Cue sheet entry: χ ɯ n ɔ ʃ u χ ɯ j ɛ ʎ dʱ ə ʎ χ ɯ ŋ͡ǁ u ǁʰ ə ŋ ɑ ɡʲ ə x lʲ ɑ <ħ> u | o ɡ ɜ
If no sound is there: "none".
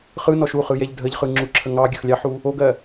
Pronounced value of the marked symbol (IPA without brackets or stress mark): ħ